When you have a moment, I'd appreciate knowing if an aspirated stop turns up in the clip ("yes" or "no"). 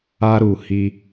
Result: no